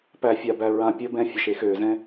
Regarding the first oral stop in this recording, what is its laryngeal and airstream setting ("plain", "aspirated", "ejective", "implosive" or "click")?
plain